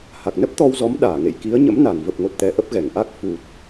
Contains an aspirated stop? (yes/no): no